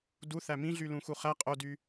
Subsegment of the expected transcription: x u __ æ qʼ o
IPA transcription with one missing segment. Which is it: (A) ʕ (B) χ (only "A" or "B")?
B